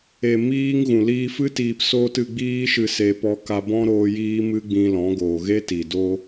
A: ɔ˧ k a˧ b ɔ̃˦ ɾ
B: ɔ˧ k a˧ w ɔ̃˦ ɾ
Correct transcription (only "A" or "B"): A